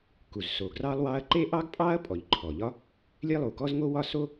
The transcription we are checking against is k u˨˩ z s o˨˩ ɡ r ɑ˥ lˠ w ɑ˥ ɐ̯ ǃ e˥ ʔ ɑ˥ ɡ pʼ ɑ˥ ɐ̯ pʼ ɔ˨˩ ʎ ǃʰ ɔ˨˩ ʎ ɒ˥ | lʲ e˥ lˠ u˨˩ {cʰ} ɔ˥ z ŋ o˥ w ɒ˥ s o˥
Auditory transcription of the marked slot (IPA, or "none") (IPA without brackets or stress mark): k